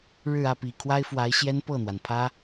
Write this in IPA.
ɻɻ̩˥˧ ä˥˩pi˨˩ kʰwa˥ɪ̯fwa˧˥ɪ̯ɕjɛ˥n pɤ˥˩n̪wa˩npʰä˥

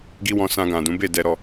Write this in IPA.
ɡi˦wɔ̃˧ sã˧ɡã˨dũ˨˦ be˦˨dɛ˧ ɾɔ˧

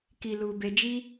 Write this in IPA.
ki˧lu˧be˧d͡ʒi˦

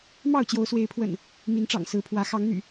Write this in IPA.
mɑ˥˨ʊ̯t͡ɕjo˨˦ʊ̯swe˨˦ɪ̯pʰwə̰˨˩n | mi˨˦nʈ͡ʂɑ̰˨˩ŋ sɹ̩˨˦pʰwä˨˦ xɑ˨˦ŋn̪y̰˨˩

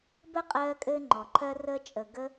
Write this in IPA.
bə˦qʼɜː˧ kʼɘː˦ŋ͡ǃɔ˨ǃʰɜ˦rəː˦ t͡ʃʼə˨ɡə˧

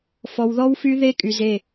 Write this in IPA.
fɔ˨wðɔ˦wfy˦ ðe˦kʼy˨ze˦˨

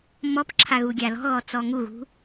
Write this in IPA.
mɔpǁʰa ɣuɡʲalɔ̤ɣɔ t͡sɔŋuɣṳ

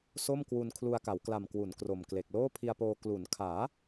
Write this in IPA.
so˥˩m kwu˧n kʰlu˧a̯ka˩˦wkla˨˩m kwu˩˦n kro˨˩mkle˨˩k̚ loː˥˩pʰi˧a̯poː˧ klu˩˦nkʰaː˩˦

